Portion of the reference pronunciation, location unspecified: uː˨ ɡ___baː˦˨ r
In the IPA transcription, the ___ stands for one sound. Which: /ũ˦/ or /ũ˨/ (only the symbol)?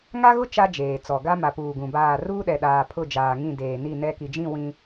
ũ˨